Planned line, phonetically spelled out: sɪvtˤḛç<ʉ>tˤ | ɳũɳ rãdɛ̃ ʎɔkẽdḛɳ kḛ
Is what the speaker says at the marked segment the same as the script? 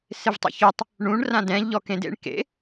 no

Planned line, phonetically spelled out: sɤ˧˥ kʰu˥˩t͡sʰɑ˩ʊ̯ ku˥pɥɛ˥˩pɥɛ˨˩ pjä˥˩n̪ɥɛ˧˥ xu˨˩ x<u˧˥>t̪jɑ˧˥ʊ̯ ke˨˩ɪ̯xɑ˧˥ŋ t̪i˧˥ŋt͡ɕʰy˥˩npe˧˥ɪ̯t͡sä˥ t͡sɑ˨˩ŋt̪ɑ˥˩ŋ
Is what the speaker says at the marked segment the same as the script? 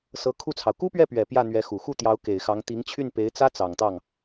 no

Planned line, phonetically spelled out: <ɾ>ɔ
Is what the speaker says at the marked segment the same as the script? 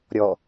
no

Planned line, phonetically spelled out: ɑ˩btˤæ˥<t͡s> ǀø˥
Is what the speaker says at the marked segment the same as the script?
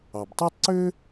no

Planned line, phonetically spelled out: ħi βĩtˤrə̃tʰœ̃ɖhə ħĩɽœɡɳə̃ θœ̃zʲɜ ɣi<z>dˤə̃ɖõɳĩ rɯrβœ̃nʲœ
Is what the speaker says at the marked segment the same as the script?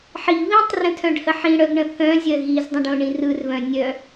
yes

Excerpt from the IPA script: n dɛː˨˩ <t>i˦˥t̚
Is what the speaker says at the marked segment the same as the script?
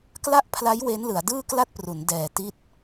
yes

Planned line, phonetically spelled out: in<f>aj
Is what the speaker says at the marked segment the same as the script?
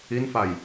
yes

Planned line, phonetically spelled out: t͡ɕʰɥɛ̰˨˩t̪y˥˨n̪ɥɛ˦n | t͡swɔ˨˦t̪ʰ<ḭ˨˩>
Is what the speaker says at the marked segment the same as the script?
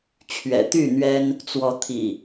yes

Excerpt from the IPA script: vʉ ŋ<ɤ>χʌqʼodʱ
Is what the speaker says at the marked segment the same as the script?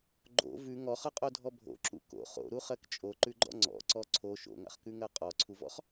no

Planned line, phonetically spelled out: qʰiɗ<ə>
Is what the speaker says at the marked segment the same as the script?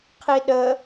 yes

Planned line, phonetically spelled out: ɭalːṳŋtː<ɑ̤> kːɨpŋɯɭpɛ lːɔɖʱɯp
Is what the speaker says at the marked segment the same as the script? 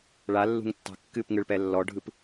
yes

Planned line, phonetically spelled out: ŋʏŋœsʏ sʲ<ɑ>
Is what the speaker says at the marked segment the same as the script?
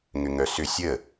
no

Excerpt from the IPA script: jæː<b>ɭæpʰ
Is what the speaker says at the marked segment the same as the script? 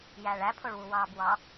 no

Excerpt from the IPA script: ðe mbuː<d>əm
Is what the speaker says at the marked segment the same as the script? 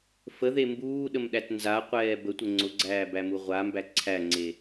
no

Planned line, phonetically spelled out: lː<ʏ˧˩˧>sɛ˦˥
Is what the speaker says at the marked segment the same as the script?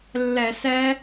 no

